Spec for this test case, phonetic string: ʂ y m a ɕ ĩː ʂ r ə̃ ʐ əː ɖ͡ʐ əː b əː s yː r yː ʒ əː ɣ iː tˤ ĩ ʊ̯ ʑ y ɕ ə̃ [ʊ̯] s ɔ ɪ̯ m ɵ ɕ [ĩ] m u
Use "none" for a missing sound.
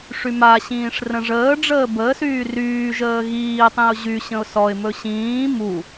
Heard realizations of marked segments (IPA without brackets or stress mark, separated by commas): ʊ̯, ĩː